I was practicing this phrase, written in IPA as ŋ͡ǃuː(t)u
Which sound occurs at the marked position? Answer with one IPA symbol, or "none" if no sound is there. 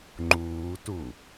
t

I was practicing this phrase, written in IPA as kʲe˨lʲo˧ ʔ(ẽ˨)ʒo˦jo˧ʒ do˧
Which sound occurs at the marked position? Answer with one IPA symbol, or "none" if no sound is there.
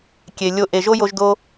e˨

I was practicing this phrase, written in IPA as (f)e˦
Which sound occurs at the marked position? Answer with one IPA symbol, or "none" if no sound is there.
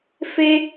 f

